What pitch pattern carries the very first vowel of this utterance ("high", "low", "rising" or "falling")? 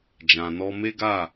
low